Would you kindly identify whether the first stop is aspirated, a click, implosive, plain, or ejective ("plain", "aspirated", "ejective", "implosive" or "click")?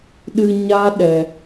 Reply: implosive